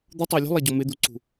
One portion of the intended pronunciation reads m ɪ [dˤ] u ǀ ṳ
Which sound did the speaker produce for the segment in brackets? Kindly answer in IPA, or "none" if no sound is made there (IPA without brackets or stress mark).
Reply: d̪